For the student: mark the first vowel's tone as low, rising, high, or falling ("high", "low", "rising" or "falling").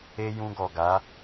high